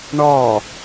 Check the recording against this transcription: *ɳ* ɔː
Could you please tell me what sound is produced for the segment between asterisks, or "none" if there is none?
ɳ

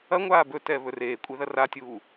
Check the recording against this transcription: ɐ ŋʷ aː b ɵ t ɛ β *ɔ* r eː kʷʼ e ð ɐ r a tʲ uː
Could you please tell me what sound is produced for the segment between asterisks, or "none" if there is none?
ɵ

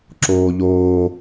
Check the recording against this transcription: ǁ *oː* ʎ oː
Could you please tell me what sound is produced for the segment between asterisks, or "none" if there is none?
oː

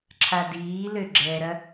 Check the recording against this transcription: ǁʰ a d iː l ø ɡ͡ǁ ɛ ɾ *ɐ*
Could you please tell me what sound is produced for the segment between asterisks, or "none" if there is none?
ɐ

